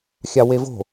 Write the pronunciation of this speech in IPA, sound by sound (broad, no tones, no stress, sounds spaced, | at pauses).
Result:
xʲ ɑ w e v o̤